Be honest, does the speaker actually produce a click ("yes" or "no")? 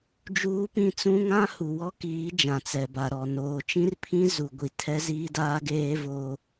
no